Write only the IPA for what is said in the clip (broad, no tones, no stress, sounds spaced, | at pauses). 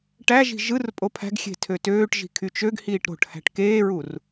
ʈ æ ʒ i̤ ʒ ɯ r pʼ o pʰ æ̤ ɡ xʲ e̤ tʰ ø t øː ʈ ʒ i̤ kʰ y t͡ʃ ø ɡ h iː ʈ ɾ o̤ ʈ h æ̤ ʈ k eː ɹ u r